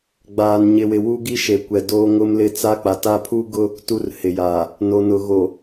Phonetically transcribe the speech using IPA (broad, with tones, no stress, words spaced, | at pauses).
ɡ͡baː˦nɲɪ˦wɪ˦ wu˦ɡi˦ʃe˨ kʷɛ˨doː˦ŋʊ˦mlɪ˦ t͡sa˦k͡pa˨ ta˦pʰu˦ɡʊ˦ | tu˦rhɪ˨jaː˨ | no˨nʊ˨ ɣo˨